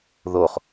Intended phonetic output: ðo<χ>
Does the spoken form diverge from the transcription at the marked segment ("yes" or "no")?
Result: no